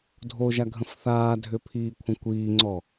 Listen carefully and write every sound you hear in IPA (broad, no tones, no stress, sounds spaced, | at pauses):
dʱ o ʒ a ɡʱ ə̃ f θ aː dʱ ʏ pʰ iː kʷʰ ə̃ kʷ iː ŋ͡ǀ ɔ